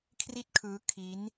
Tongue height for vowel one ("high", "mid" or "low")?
high